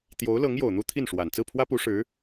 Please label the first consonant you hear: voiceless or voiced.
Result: voiceless